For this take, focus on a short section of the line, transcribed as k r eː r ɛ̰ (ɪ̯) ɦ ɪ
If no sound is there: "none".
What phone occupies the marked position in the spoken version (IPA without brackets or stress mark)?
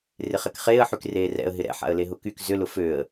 ə̯